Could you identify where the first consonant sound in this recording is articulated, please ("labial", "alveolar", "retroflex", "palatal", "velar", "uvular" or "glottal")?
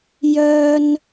palatal